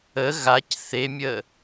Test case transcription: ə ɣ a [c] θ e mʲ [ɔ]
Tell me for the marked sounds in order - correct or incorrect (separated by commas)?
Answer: correct, incorrect